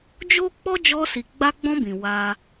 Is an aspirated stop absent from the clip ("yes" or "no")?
yes